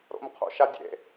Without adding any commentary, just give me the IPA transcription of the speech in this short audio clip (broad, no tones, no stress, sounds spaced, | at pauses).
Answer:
ɾ o̰ m qʰ o̰ ʃ a dʲ ḛ